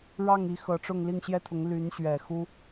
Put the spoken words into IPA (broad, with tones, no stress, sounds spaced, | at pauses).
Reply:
ɻ ɑ˥˩ ŋ i˧˥ x ɤ˧˥ ʈ͡ʂ ʊ˥˧ ŋ l i˥˩ ŋ ɕ j ɛ˥ t̪ʰ ʊ˧˥ ŋ l y˧˥ n ɕ ɥ ɛ˨˩ x u˥